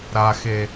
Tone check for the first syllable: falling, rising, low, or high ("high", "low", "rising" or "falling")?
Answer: low